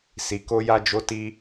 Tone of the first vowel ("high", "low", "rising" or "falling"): low